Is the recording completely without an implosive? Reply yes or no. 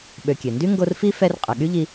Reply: no